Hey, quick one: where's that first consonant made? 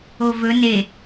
lips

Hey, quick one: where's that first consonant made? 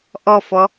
throat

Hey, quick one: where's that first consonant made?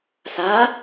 tongue tip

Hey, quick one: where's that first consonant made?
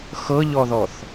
velum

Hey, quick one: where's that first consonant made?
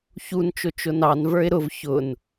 palate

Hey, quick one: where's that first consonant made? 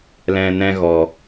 tongue tip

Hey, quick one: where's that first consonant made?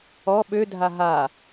lips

